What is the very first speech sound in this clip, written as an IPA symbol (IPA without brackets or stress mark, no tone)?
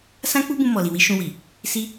s